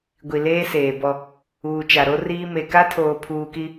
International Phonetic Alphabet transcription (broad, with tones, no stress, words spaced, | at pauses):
ɡʷi˨leː˦seː˨bɔ˦ | uː˨t͡ʃa˨ ɾo˦riː˦ me˨ka˦tʰoː˨ pʰuː˦ki˦